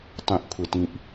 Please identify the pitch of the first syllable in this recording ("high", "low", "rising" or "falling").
low